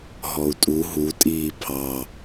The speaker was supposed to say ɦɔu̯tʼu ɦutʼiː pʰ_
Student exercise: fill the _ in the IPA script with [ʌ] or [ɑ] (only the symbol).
ɑ